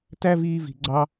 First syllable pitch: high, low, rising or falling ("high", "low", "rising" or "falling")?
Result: high